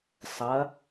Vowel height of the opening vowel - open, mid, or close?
open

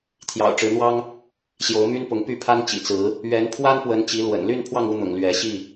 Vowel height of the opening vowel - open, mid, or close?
open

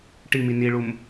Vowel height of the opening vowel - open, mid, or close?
close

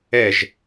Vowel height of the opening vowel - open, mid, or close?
mid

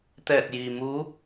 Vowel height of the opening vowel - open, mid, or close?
mid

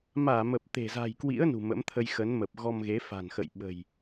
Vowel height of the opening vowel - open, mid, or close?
open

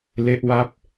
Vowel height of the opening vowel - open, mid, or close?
mid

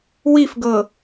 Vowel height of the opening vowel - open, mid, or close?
close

